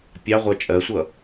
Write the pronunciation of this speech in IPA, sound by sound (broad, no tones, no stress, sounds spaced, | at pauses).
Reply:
pʲ ɑ ʁʷ ɜ t͡ʃʼ ɜ sʷ ʌ